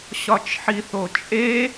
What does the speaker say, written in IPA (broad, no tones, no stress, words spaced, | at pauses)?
ɕɒt͡ʃħiθot͡ʃʼe